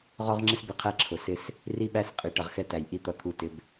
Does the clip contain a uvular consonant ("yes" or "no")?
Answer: yes